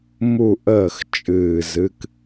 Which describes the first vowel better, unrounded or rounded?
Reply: rounded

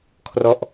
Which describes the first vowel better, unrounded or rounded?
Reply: rounded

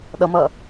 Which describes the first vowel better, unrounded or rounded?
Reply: unrounded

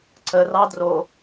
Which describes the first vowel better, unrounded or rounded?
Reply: unrounded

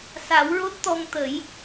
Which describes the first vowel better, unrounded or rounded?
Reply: unrounded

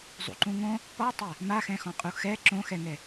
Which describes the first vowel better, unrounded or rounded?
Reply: rounded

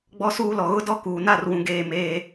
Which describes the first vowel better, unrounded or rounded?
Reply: rounded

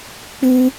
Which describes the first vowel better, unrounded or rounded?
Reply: rounded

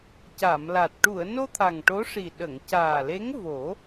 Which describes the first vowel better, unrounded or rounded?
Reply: unrounded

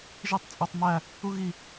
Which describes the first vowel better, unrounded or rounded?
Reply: unrounded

